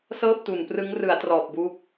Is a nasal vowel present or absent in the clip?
absent